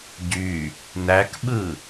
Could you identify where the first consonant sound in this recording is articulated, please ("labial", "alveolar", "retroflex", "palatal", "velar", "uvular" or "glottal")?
palatal